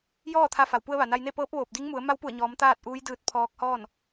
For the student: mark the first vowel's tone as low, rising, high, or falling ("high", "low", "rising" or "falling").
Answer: falling